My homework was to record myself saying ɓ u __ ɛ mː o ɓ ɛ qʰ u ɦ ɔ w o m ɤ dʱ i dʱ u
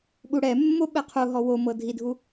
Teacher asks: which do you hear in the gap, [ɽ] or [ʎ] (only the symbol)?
ɽ